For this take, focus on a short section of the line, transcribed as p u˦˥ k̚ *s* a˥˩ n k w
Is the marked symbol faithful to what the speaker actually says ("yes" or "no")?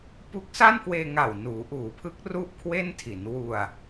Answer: yes